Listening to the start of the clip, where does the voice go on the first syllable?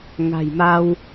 low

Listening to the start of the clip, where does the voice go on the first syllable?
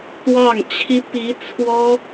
falling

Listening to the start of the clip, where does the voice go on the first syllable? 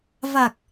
low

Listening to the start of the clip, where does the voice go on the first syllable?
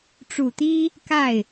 low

